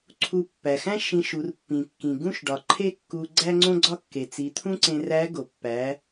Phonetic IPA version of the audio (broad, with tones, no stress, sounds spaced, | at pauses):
ǀʰ u˧ pː æ˩ x æ̃˥ ʃ ĩ˧ ʃ u˩˧ r pː ĩ˩ kː ĩ˩ ɡ ũ˥ ʃ ɖ ɒ˩ ǃʰ e˥ kː u˧ ɡ͡ǀ æ˥ ŋ͡ǀ õ˥ ɡ͡ǀ ɒ˥ kː e˩ t͡s i˩˧ t̪ʰ ũ˥ ǀ ẽ˧ r æ˧˥ ɡ o˩ pː æ˩˧